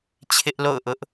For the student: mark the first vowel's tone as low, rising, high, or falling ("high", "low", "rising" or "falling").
high